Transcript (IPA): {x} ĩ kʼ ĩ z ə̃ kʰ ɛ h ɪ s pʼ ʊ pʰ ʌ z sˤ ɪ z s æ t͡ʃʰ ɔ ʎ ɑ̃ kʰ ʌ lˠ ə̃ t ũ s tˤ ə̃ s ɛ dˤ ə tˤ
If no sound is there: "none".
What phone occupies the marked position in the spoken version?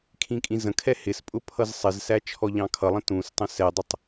kʰ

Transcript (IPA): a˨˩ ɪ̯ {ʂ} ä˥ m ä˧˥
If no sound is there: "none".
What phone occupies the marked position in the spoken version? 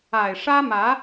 ʂ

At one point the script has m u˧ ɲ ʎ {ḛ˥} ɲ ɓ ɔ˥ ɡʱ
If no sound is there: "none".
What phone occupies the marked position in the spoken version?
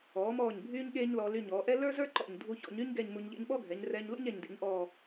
ḛ˥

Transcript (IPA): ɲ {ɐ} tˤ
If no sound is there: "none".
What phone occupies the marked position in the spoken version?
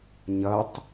ɐ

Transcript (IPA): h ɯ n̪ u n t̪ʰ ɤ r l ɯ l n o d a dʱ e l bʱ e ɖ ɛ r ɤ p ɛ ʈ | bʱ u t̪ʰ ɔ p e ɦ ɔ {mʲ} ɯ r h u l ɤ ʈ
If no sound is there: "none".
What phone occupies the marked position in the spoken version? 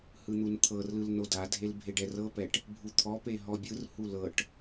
bʲ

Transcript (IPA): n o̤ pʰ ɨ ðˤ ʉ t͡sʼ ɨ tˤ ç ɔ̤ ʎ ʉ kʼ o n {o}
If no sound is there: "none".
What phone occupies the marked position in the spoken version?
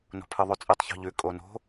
o̤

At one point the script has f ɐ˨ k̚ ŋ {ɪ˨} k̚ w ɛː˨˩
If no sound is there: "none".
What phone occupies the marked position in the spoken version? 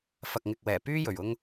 ɪ˨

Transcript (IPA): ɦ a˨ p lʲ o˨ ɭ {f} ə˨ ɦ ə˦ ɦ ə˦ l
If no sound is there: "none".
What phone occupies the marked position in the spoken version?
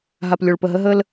p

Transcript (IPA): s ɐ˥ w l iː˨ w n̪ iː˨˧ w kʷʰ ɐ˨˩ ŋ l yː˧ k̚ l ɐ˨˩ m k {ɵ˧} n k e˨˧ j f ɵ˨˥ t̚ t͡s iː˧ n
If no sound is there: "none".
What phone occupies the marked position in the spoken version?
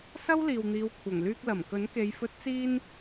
ɵ˨˥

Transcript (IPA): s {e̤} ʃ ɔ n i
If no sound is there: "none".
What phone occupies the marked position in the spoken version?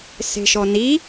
e̤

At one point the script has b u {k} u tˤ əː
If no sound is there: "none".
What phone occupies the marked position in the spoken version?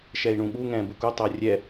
k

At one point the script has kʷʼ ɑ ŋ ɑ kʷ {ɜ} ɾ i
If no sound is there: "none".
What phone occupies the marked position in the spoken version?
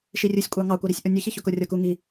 ɜ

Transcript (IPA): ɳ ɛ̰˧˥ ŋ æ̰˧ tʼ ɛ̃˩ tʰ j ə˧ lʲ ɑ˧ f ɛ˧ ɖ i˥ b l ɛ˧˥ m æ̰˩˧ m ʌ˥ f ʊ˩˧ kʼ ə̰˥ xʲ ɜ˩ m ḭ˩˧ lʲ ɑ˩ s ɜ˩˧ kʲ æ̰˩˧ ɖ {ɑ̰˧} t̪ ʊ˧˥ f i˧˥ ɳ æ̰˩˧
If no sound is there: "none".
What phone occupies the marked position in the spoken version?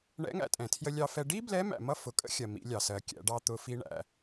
ɑ˧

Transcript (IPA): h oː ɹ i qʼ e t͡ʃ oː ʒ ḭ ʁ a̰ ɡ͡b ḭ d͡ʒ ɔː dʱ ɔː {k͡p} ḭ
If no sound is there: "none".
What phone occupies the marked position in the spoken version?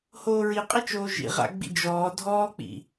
k͡p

